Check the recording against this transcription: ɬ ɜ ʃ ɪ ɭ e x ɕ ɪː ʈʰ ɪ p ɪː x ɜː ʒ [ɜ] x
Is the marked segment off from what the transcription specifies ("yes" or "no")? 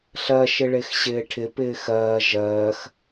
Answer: yes